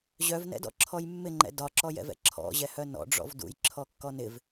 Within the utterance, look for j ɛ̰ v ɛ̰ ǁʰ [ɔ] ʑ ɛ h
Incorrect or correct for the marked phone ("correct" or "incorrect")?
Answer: incorrect